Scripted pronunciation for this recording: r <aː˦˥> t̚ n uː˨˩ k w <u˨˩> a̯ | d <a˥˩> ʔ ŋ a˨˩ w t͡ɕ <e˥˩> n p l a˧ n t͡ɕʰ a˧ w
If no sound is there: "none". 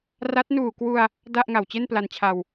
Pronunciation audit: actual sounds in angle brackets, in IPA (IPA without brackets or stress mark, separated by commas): a˦˥, u˧, a˥˩, e˥˩